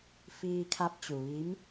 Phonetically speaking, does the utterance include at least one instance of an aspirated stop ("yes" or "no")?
yes